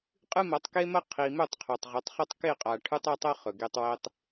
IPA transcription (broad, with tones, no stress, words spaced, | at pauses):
qʼɨ˦mɐ˨˦tˤke˦mɐ˦ qʰi˨mɵ˦˨tˤqʰo˨tˤ ʁɵ˨˦tˤχɵ˦tˤ ke˦˨qʼa˨ ʈʰʉ˦tˤɐ˦tˤɐ˦ χɵ˨ɡe˦tˤwe˦tˤ